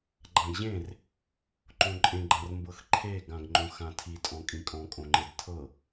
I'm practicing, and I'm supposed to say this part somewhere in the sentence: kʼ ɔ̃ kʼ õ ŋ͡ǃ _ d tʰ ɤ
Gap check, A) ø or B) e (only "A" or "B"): B